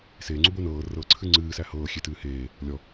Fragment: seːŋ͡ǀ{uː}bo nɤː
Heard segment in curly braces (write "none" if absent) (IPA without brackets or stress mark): u